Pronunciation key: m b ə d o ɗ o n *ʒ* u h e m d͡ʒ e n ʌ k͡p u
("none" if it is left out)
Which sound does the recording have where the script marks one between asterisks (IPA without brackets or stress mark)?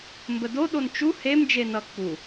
t͡ʃ